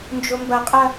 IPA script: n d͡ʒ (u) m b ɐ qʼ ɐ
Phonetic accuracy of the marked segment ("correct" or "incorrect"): incorrect